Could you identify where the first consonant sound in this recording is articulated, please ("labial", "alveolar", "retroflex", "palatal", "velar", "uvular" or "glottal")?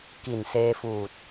velar